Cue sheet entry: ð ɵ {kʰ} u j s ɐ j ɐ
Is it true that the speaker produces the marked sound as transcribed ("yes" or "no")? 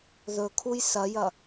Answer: yes